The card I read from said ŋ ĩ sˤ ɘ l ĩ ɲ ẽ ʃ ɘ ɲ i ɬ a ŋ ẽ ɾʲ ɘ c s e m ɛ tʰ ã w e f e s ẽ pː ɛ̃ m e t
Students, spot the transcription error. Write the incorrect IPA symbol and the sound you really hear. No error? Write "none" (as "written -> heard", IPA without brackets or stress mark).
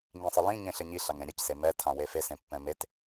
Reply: ʃ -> ɬ